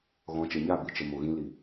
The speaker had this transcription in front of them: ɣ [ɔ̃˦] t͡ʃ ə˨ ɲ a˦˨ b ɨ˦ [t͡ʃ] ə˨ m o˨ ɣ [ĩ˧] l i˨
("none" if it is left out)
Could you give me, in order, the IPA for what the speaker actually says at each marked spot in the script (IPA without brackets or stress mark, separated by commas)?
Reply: ɔ̃˨˦, t͡ʃ, ĩ˧